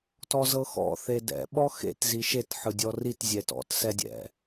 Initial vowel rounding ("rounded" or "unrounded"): rounded